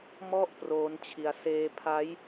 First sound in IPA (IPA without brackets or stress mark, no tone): m